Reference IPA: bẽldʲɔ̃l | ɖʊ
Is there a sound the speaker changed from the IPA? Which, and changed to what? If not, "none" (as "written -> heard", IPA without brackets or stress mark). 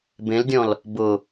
ɖ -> b